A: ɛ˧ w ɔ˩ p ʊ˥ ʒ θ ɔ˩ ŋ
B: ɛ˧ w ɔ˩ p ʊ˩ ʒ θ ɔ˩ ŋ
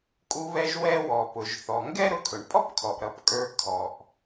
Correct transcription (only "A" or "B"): B